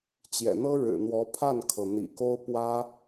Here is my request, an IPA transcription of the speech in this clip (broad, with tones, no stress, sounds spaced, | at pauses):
t͡ɕ j ɛ̰˨˩ n̪ ɤ˥ ɻ ɻ̩˨˩ n̪ w ɔ˧˥ pʰ a˥˩ n kʰ ɤ˩ n̪ ḭ˨˩ k o˥ ʊ̯ p w ä˥